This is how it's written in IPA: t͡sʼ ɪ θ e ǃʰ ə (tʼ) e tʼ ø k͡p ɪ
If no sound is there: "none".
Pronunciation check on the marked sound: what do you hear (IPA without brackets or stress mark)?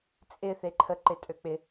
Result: ǃ